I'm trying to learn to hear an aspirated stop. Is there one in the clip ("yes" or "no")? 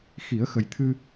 yes